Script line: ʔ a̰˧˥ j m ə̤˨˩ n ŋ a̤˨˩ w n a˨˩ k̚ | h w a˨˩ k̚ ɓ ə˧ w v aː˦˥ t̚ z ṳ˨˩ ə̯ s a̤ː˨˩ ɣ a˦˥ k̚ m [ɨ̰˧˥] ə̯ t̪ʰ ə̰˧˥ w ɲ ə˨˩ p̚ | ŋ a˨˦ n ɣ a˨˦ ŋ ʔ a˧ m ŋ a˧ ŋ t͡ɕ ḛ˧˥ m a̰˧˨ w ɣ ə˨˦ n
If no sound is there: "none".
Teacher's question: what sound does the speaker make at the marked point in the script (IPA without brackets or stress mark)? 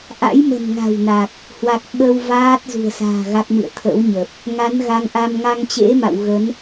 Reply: ɨ̰˧˨